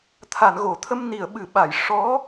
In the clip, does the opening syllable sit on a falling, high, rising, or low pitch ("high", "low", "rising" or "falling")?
low